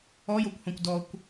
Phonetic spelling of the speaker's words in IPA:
ɔ j o kʷ h ɔ̃ kʷ d ɔ kʷ

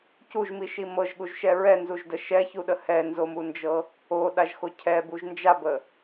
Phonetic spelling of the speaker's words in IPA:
c u ʒ m i ʃ i m ɤ ʒ ɠ u ʒ ʃ ɛ ɹ ɛ n z u ʒ d ə ʃ ɛ ç u ɗ ə h ɛ n z o m u n d͡ʒ ɤ | o ɗ a ʒ x o cʰ ɛ b u ʒ n d͡ʒ a b ə

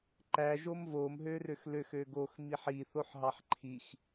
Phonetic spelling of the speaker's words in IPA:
ǃ æ ʒ o m v o m ɦ ø r ø x l ø x ø ɡ o x m i ħ i θ o ħ ɦ ɑ ħ ǃʰ i x

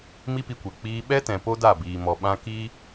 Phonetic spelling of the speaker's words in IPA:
m i˦ p i˧ kʷ ɛ˨ k͡p iː˧ ɓ ɛ˦ t ɛ̃˨ p o˦ d a˦˨ b iː˨ m ɔ˨ ɓ ã˦ k iː˦

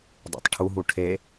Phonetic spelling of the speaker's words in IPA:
dˤ ḛ tˤ ʈʰ u ɦ u ʈʰ e

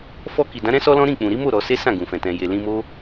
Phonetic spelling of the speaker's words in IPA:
f ɔ˧ k i˨ d ã˨˦ ɾ ɛ̃˦ s ɔ˦ l ɔ̃˦ ɾ ĩ˦˨ k͡p ũ˨ ɾ i˨˦ m o˦˨ ɾ ɔ˧ s e˦ s ã˦˨ ɡ ũ˨ f ɛ̃˨ t ɛ̃˨ j e˨ l ĩ˧ m o˦

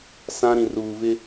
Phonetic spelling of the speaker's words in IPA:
s ã˦ ɾ ĩ˨ r uː˨ v ɪ˦

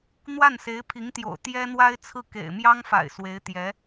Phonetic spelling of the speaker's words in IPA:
n̪ w a˥˩ n s e˧˥ ɪ̯ pʰ i˧˥ ŋ t̪ j o̰˨˩ ʊ̯ t̪ j ɛ˥ n̪ w a˥ ɪ̯ t͡sʰ ɹ̩˥˩ k ḛ˨˩ ɪ̯ m j ɑ˥ ŋ f a̰˨˩ ɪ̯ s w e˧˥ ɪ̯ t̪ j ɛ˧˥

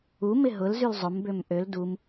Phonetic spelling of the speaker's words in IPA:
u m ɪ ɦ ʊ l z y l zˤ ʊ m b ø m ʔ ø l d u m

